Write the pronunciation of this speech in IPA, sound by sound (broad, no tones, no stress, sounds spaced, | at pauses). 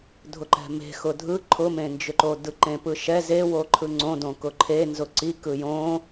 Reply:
dʱ ʊ ǃ ɛ̤ m e̤ x ʊ dʱ ɯ ǃʰ ʊ m ẽ n d͡ʒ ʏ ǃ o d ɯ ǃ ẽ p ɯ ʃ ɛ z e w o ǃʰ ɯ ŋ͡ǀ õ d õ k ʊ ǃʰ e n z ʊ ǀ i k ɯ j õ